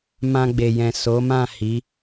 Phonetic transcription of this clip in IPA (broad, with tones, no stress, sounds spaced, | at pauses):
m ã˧ ɡ͡b e˨ j ɛ̃˨ s o˨˦ m ã˦˨ h i˨˦